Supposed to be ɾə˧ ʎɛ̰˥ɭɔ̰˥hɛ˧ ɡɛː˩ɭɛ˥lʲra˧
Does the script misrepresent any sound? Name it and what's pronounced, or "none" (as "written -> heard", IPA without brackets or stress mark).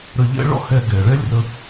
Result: a˧ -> ə˧